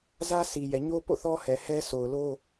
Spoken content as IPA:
z ä˦ sʰ i˨ j ɛ˨ ɲ o˦ p o̰˦˨ θ ɔ˦ h ɛ˨ h ɛ˦ s o˨ ʊ̯ l o˦

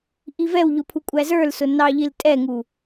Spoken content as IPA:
ʔ i v ɛ w ʎ ʊ pʰ u kʷʼ æ z ə˞ l s ʊ n ɑ ʎ i l tʼ ɛ ŋ u

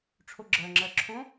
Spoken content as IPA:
ʈ͡ʂʰ o ɡ͡ǁ ɜ ŋ͡ǁ ɜ ǁʰ õ

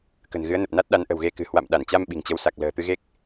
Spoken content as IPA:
k ə̤˨˩ n ɣ ɨ˨˦ ə̯ n ə˨˩ p̚ n a˦˥ t̚ ɗ a˨˦ n ʔ ə̤˨˩ w ɣ e˧ k ɨ̤˨˩ h w a̰˧˨ m ɗ a˧˩ n t͡ɕ a˧ m ɓ i̤˨˩ ŋ t͡ɕ ə˨˦ w s a˨˩ k̚ l ə̤ː˨˩ t̪ ɨ˧ ɣ e˦˥ k̚

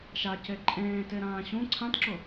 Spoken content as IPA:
ʃ a c e ǃʼ ẽː t e ɾ ãː ɕ ũ ǀʰ ã t ǁ ʊ

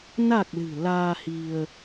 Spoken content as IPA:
n a˨˩ k̚ l ɨ̤˨˩ l aː˧ h i˧ ə̯

